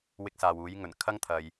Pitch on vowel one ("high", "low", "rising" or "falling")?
high